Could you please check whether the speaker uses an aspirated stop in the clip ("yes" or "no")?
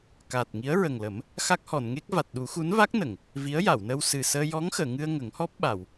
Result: no